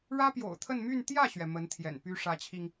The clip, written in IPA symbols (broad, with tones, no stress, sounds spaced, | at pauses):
ɻ ä˥ p j o̰˨˩ ʊ̯ t̪ʰ ə˥˧ n m y˥˧ n t̪ j ä˥˩ ɕ ɥ ɛ˩ m ə˧˥ n t̪ʰ j ɛ̰˨˩ n p y˥ ʂ ä˧˥ t͡ɕʰ i˧ ŋ